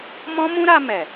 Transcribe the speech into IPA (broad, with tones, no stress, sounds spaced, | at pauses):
m ɔ̃˦ m ũ˦ ɾ a˧ m ɛ˨